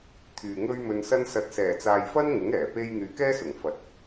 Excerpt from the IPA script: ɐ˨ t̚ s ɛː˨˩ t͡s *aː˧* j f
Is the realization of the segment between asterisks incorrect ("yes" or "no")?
yes